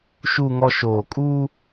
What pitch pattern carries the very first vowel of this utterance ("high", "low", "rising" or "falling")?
low